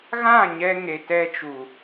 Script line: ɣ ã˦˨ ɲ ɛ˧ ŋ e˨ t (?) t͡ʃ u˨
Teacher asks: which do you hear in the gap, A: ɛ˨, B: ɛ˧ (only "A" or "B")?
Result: B